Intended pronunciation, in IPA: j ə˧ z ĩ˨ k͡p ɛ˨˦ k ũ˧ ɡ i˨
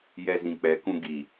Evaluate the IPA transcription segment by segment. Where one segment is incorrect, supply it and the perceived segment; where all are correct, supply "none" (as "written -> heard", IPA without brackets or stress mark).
ə˧ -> ɛ˧